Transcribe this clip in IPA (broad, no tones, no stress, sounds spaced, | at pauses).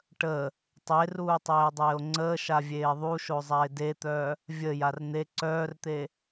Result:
ʈ ə | tˤ e r uː tˤ eː dˤ eː o̯ ŋ͡ǀ əː ʃ a vʲ eː ðˤ u ʃ o zˤ a e̯ d e t̪ œ | vʲ ə j a r n̪ e ǀ œː r t̪ e